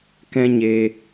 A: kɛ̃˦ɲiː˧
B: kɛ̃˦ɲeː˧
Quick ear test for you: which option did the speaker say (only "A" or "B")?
B